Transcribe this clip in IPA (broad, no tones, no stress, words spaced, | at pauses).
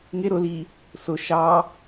ŋɪ ɾʊli | sʊ ʃɑ